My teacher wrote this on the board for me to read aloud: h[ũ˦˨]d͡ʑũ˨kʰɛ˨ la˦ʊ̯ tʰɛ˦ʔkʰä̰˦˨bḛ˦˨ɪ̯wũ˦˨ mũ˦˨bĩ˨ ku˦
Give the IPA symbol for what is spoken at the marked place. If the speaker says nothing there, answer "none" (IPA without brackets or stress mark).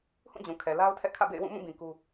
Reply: ũ˦˨